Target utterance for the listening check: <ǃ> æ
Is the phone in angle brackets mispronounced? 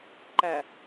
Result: no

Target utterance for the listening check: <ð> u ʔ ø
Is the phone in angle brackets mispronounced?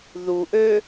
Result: no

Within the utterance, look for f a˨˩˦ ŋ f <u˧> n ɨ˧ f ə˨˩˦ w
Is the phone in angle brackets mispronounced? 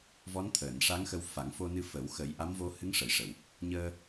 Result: yes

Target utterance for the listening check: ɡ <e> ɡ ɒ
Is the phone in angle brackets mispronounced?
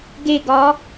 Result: no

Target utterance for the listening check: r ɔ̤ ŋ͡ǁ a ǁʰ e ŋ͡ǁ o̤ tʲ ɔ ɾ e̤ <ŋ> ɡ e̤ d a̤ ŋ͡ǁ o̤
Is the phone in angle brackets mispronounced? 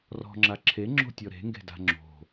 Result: no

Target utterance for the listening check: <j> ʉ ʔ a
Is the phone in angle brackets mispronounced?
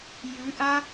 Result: no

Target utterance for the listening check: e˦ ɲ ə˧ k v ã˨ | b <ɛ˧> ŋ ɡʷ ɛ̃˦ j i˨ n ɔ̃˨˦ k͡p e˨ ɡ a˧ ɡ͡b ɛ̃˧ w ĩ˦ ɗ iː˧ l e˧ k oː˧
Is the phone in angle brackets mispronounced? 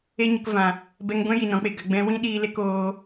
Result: no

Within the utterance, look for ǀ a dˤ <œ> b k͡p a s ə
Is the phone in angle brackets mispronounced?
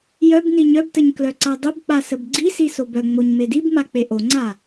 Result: yes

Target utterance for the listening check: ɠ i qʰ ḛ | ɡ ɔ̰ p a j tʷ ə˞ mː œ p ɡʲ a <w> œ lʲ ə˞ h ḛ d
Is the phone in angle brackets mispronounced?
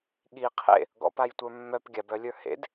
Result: yes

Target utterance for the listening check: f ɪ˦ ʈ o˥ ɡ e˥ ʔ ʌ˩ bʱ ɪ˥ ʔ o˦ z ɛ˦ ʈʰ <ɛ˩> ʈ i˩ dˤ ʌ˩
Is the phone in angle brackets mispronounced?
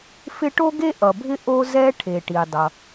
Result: yes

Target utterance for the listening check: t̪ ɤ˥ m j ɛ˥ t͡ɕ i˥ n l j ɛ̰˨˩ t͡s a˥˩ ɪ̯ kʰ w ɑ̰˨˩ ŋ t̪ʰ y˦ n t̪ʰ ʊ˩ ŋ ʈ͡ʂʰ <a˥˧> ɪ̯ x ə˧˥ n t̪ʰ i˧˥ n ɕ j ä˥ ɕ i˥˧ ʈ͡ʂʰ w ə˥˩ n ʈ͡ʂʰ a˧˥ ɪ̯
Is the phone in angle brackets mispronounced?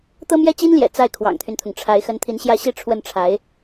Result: yes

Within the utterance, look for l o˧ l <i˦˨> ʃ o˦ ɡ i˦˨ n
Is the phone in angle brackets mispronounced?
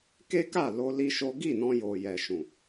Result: yes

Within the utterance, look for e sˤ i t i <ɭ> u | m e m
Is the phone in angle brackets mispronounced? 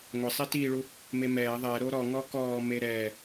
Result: no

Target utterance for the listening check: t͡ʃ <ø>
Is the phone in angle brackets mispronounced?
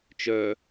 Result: yes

